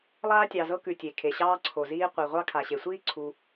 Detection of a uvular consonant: present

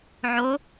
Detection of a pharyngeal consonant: present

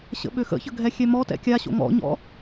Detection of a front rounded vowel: present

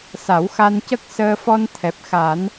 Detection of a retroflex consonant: absent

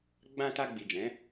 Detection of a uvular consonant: absent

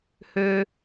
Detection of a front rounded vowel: present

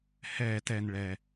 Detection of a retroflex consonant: present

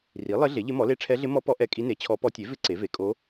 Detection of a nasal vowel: absent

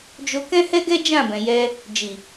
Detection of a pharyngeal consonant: absent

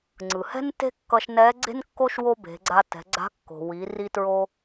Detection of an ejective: absent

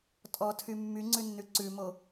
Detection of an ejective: present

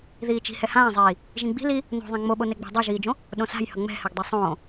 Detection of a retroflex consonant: absent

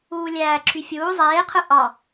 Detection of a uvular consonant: present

